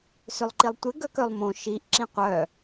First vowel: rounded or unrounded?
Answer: rounded